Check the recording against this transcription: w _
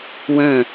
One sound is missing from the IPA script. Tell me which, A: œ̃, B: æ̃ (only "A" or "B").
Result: A